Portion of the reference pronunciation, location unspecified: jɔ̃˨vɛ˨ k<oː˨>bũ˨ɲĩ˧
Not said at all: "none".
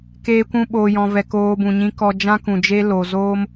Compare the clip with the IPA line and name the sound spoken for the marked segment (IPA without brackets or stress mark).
oː˧